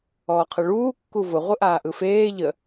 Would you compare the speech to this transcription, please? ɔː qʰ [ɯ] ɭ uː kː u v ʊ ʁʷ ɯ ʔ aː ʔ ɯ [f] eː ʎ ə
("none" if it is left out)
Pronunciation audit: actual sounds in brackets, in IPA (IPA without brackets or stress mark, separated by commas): ɯ, f